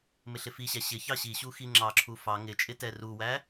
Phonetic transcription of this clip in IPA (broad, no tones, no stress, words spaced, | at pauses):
mɪɬɪfiɕæ ɕɪ çɑɕiɕu xiŋ͡ǁɑǁʰu fɑ ŋɪt͡ʃʼɪ tɛruwæ